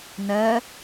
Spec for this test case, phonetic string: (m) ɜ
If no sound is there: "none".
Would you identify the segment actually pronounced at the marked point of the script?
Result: n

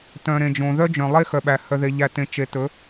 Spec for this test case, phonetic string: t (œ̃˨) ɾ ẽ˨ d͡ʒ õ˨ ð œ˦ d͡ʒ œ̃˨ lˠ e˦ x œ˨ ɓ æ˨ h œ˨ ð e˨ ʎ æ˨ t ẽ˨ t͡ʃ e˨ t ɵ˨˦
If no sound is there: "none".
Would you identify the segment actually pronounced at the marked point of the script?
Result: œ̃˨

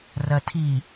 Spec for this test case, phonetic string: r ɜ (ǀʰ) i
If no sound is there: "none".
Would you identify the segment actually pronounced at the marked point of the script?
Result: tʰ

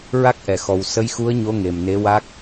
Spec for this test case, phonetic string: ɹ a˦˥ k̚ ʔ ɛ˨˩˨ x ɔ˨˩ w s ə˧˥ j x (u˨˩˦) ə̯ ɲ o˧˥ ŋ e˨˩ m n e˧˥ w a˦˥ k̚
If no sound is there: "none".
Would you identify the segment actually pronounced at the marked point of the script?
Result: u˧˥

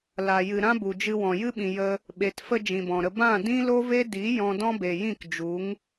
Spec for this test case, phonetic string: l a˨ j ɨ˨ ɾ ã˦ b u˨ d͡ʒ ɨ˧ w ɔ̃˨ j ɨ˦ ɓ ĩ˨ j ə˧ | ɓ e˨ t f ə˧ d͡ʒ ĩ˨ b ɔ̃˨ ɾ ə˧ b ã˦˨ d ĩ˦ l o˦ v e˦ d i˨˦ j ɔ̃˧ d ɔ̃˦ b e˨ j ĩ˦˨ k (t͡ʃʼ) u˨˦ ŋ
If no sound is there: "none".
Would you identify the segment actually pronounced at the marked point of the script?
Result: d͡ʒ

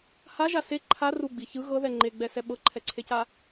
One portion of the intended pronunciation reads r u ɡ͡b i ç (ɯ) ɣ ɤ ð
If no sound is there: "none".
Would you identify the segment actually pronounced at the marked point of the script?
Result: ɯ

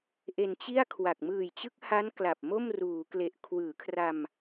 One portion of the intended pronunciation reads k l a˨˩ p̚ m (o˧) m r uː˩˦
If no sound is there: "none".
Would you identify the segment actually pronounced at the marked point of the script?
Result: o˥˩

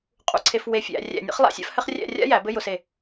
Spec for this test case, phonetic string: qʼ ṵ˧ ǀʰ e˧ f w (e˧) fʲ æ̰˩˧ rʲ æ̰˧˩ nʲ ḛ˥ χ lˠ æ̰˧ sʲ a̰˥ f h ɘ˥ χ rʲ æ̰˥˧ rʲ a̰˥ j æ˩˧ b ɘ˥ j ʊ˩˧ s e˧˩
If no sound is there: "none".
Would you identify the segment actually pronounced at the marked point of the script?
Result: e˧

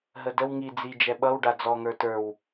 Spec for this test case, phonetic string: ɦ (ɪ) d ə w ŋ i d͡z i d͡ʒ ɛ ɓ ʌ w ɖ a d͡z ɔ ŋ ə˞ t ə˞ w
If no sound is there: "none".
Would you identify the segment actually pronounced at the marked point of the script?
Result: ə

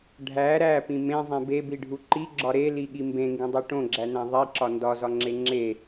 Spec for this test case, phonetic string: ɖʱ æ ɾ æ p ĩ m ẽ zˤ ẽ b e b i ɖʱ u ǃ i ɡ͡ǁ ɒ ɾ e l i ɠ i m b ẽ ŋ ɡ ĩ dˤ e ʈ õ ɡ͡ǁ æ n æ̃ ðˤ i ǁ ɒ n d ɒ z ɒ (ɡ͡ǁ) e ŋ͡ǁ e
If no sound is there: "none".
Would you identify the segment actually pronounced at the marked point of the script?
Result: ŋ͡ǁ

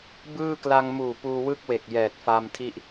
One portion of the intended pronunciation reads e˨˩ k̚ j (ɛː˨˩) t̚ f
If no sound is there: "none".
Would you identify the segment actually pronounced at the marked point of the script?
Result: ɛː˨˩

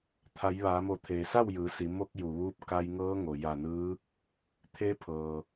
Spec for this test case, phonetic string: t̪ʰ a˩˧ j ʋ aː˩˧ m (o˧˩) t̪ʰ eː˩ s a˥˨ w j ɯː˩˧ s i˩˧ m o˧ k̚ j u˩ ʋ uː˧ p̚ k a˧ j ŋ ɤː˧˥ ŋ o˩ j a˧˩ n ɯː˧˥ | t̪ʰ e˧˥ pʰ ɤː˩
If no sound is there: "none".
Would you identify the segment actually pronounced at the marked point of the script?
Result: o˧˩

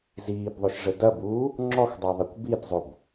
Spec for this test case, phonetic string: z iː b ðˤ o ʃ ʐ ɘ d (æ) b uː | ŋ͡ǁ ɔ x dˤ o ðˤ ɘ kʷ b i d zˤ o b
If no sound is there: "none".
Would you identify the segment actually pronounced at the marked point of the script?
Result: ɐ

